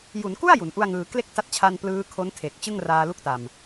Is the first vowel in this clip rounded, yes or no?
yes